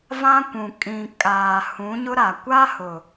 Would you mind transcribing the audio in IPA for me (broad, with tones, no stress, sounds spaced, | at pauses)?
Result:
v ã˦ kʷ ũ˨ kʼ ĩ˨ kʼ aː˨ h ũ˨˦ ɲ ʊ˦ ɾ a˨ kʷ a˦ h ʊ˨